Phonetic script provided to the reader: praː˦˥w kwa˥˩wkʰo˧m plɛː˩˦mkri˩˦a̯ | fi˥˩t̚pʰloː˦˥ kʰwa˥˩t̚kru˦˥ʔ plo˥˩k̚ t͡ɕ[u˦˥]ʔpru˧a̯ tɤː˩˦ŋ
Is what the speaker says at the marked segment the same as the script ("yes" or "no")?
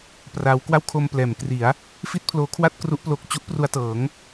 yes